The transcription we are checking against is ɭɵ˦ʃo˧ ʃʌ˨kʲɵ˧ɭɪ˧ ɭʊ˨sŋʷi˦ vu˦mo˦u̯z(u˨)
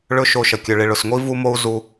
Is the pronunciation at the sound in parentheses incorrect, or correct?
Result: incorrect